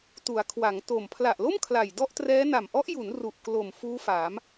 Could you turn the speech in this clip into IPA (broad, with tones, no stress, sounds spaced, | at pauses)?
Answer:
t u˩˦ a̯ kʰ w a˩˦ ŋ t o˨˩ m pʰ l a˨˩ ʔ l o˥˩ m kʰ l a˨˩ j d ɔ˥˩ ʔ t r ɛː˦˥ n a˨˩ m ʔ ɔ˦˥ ʔ j u˩˦ n r u˨˩ ʔ k l o˨˩ m f uː˦˥ f aː˩˦ m